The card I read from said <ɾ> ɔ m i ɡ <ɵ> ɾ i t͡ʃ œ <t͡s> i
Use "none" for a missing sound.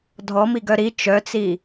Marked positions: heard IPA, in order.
dʱ, œ, t͡s

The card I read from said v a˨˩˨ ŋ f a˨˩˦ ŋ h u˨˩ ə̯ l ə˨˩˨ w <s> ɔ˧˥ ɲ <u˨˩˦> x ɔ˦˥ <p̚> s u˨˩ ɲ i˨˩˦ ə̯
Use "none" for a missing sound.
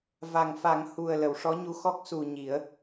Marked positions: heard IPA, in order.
ʂ, u˧˥, k̚

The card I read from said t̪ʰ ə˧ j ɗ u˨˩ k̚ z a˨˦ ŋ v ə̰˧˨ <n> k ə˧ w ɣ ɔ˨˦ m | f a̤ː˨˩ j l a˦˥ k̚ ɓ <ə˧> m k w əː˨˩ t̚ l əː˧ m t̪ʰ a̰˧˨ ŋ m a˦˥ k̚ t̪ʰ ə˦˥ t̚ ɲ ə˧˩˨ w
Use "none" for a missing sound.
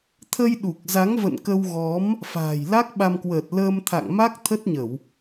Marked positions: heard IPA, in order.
n, a˧

